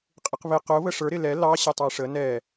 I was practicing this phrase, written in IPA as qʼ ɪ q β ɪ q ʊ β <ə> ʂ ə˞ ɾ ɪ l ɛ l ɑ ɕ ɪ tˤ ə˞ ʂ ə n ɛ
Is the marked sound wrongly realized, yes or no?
no